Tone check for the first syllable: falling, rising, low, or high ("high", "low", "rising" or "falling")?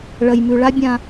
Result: low